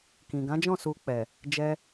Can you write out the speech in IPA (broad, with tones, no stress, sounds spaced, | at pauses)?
k ĩ˨ ɡ ã˨˦ d͡ʒ ɔ̃˦˨ s u˧ k͡p ɛ˨ | d͡ʒ ɛ˧